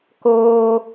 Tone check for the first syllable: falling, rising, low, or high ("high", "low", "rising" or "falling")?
high